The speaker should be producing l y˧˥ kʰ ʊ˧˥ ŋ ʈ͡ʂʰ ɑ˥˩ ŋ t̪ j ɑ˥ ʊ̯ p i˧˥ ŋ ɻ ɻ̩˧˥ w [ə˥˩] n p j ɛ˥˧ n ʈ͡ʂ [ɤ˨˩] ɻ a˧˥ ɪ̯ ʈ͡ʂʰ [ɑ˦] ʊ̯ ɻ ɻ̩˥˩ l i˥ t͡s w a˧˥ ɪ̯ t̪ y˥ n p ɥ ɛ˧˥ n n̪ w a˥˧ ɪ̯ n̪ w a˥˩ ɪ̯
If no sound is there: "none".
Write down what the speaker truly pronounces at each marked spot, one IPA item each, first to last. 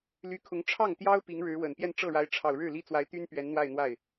ə˨˩, ɤ˥˩, ɑ˨˩

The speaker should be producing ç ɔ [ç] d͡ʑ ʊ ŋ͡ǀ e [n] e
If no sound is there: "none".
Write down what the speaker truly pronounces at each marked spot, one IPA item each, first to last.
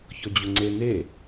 none, n

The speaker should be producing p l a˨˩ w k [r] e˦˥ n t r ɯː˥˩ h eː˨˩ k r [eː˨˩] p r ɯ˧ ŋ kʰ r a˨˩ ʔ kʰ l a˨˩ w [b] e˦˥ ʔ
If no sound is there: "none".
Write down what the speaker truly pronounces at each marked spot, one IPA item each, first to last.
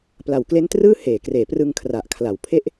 l, eː˨˩, pʰ

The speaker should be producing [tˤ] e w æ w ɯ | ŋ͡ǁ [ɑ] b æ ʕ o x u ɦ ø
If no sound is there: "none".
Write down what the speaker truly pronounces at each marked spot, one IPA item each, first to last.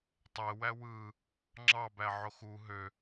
tˤ, ɑ

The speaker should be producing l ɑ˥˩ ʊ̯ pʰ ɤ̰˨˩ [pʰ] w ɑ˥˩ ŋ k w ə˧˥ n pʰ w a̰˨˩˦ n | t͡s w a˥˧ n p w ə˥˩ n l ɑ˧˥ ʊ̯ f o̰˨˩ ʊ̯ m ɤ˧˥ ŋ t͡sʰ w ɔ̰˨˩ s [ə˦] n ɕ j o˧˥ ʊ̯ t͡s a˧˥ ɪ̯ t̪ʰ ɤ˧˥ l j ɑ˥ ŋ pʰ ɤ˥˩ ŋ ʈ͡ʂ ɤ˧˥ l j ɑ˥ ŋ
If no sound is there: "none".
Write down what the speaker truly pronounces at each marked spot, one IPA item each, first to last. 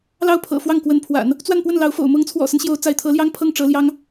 f, ə˦

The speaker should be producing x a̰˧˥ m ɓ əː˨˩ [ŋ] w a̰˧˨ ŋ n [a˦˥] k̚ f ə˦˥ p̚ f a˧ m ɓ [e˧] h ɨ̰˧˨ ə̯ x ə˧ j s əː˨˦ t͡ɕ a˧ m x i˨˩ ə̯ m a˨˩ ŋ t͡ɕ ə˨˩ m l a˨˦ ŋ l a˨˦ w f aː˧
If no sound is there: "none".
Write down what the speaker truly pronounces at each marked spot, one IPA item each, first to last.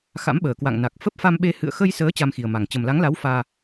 k, a˨˩, e˧

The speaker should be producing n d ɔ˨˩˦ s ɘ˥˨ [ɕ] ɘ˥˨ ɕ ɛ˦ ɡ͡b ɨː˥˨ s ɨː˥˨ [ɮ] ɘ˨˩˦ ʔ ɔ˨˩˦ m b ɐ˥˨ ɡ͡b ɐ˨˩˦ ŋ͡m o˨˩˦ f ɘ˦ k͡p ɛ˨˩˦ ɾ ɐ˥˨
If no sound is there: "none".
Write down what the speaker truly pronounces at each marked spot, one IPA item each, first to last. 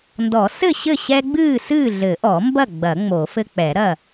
ɕ, ɮ

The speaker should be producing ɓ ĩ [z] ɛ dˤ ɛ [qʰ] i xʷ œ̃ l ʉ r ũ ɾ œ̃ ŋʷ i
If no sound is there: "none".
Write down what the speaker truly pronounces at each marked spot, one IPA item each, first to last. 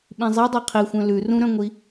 zˤ, qʰ

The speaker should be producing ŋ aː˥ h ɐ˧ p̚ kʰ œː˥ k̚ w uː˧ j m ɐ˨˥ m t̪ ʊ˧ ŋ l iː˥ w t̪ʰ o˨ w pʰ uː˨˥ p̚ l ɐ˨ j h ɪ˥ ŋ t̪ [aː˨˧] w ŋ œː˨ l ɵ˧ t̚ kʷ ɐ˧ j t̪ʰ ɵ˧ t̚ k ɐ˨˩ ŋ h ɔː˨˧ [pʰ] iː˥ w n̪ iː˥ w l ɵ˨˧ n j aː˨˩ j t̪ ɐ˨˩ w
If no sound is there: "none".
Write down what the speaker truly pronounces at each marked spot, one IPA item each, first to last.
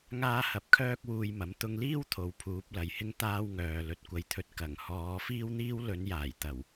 aː˥, f

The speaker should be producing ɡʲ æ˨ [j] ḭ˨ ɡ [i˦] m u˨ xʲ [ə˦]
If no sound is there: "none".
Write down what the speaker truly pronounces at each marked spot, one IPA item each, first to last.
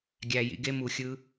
j, e˦, ɯ˦

